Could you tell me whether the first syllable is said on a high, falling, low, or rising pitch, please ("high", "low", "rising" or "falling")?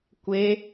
high